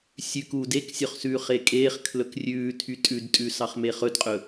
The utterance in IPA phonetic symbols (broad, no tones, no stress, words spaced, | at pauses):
sʲʉk uːdeksʲœχsʉːχ ekʼeːχ kʰlɵkrʲʉːtʰy tʼʉdtʼʉ sɑχmeχɵdqʼɵ